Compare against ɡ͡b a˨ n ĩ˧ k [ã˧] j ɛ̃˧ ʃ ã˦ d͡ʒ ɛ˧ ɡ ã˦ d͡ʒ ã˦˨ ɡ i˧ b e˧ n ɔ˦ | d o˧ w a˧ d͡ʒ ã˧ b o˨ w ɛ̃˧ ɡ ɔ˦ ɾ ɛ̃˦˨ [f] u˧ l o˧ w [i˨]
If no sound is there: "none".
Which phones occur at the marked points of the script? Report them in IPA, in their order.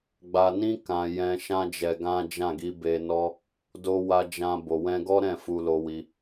ã˨, f, i˧

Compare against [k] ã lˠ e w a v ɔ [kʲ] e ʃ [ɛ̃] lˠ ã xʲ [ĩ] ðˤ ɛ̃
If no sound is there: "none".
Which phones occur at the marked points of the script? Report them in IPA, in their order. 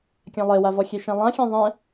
kʲ, xʲ, ɛ̃, ẽ

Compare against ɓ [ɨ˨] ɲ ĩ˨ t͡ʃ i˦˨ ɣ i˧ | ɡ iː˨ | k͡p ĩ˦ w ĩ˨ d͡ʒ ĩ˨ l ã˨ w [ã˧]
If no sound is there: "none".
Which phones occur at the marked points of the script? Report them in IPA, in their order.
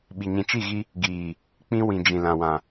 i˨, ã˨

